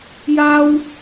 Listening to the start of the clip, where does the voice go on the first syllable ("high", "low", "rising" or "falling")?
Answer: high